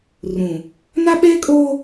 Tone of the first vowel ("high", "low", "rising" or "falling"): low